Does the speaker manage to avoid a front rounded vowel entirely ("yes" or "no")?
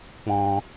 yes